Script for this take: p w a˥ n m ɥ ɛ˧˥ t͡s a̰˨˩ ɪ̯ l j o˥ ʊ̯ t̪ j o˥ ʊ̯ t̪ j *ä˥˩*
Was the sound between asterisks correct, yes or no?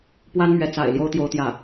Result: yes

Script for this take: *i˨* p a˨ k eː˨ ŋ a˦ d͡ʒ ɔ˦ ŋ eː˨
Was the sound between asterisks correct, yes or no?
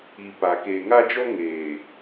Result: yes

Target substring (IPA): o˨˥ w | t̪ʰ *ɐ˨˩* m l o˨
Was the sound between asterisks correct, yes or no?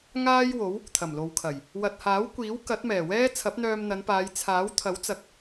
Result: yes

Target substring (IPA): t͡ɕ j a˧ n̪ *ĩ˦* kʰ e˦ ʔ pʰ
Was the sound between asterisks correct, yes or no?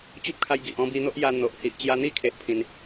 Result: no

